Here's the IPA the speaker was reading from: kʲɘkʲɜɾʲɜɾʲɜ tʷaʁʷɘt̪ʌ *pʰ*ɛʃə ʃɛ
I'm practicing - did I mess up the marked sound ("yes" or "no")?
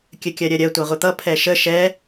no